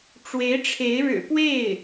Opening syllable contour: rising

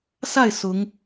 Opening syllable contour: falling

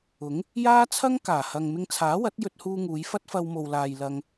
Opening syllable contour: rising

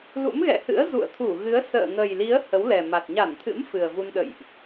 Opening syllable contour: rising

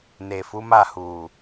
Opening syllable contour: low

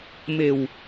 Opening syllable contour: low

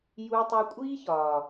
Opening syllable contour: high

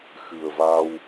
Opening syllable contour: low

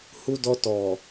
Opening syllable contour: high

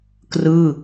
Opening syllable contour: falling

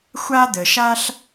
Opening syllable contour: high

